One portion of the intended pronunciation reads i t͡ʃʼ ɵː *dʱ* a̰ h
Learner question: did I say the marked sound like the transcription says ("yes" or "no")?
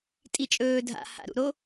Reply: yes